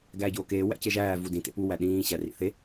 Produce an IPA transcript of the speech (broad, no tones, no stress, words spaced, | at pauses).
ɡæːɟoːkeː wæ̰ceʒæː vudĩ tḛpu wæɗĩː ɕærḭθe